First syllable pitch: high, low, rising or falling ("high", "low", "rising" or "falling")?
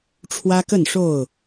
high